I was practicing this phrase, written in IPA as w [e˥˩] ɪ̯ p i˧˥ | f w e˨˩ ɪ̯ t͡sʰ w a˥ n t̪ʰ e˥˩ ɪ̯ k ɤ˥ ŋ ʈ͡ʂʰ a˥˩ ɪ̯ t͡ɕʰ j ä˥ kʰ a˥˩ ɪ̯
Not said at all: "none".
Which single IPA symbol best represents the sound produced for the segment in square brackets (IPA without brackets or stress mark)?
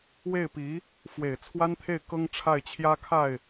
e˥˩